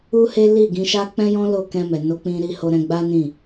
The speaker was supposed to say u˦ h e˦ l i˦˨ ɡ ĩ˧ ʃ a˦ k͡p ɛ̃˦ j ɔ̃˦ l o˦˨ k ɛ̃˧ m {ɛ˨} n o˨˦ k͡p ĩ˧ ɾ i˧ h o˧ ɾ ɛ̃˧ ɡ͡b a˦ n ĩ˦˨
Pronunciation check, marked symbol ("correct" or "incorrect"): correct